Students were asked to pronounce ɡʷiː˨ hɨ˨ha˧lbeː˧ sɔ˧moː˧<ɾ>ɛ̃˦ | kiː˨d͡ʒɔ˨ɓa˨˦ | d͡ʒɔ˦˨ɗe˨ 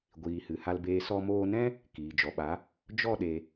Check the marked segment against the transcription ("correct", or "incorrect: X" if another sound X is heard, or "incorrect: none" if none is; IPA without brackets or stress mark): incorrect: n